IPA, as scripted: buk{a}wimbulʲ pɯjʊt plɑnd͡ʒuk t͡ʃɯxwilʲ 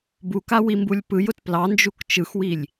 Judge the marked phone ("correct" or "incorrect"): correct